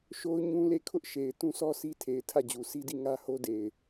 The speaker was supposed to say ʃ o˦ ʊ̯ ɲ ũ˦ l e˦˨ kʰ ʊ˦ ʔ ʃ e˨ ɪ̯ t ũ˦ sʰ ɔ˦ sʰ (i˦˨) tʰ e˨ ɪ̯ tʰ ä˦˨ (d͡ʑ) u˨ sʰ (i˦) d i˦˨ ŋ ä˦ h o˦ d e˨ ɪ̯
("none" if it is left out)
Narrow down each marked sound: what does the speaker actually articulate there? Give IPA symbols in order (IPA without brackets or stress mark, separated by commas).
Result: i˦, d͡ʑ, i˦